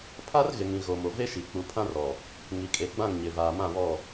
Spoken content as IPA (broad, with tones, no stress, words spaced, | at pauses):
pʰa˦rɣɪ˨ŋĩ˨ ɣo˨mo˨ve˦ʃi˨ k͡pu˨pʰã˦rɔ˨ | ŋi˨kʼe˨ɡ͡bã˦˨ŋ ɲɪ˨vaː˨mã˦˨βɔ˦˨